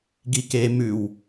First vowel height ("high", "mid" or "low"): high